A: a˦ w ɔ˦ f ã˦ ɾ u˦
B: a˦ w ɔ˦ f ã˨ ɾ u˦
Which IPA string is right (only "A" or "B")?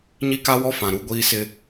B